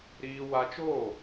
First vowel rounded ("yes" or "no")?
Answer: no